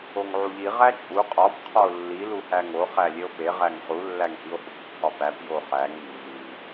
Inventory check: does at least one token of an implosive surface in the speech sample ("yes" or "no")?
no